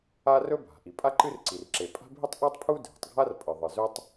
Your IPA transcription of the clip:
a˥ r ɵ˥ bʱ a̤˩ ʔ i˩ pʼ a˥ ǃ ɨ˥ r ǀ i˩ r ǁ e˩ pʼ a̤˥ bʱ i˥ tˤ ʔ o˥ tˤ pʰ u˥ dʱ e̤˩ tˤ ɡʱ a˥ r pʼ ɨ˩ ðˤ ɨ˩ z ɵ˥ tˤ

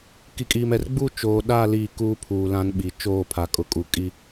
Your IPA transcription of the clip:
k i˨ kʼ iː˨ m ɛ˨ r ɡ͡b uː˦ t͡ʃ oː˨ ɗ a˦˨ l iː˦˨ k uː˦ pʰ uː˨ l ã˦ n ɓ i˨ t͡ʃ oː˦˨ pʰ a˨ kʼ ʊ˨ kʼ u˨ kʼ i˦

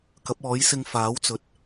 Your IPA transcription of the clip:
k ɐ˨˥ p̚ ɔː˨˥ j s ɪ˧ ŋ f aː˨˥ w t͡s ɵ˨ t̚

